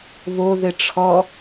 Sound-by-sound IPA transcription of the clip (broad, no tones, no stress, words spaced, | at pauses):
βoðɘ ʈ͡ʂʰɔ